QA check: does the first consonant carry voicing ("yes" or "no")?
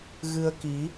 yes